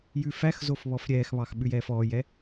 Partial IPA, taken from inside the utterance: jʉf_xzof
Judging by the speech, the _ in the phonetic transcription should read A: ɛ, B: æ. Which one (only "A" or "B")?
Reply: B